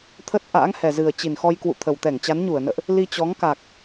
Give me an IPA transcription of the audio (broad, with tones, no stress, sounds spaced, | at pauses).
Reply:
t̪ʰ ə˦˥ t̚ ʔ a̰ː˧˥ ŋ h ɛ˨˩ z ɨ˨˩ ə̯ t͡ɕ i˨˩ n x ɔ˧ j k w ṵ˧˨ t̪ʰ ə˨˩ w t̪ ɛ˧˩ ŋ t͡ɕ a˨˦ n ɲ u˧˩ ə̯ n ə̰ː˧˨ ʔ | l i˧ t͡ɕ ɔ˨˦ ŋ k a˨˩ k̚